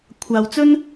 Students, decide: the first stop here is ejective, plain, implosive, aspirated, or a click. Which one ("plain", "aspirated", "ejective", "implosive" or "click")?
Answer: aspirated